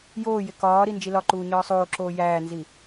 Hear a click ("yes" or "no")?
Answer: yes